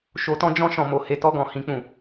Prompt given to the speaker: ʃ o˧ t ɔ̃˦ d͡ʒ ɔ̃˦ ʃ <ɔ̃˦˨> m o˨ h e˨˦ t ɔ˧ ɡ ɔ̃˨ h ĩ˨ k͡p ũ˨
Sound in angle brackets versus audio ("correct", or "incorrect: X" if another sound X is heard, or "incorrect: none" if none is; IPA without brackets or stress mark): incorrect: ɔ̃˧